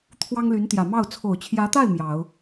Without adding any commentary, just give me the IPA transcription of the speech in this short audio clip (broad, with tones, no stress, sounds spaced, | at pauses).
t̪ʰ w ɑ˥ ŋ l y˧˥ n t̪ j ä˨˩ m ɑ˥˩ ʊ̯ t͡sʰ o˨˩ ʊ̯ t͡ɕʰ j ä˧˥ t̪ a˥˩ ɪ̯ m j ɑ˨˩˦ ʊ̯